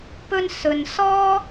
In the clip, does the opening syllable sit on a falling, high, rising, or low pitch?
high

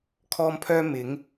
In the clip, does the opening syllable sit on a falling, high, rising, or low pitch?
high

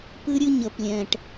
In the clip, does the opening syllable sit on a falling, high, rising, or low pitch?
high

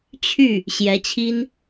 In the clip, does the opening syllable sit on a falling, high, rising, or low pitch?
falling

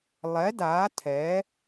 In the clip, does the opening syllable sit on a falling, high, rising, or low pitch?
rising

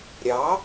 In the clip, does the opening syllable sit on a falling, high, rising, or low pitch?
rising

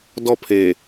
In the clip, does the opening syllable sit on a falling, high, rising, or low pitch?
falling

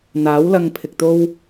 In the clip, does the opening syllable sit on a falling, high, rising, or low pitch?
rising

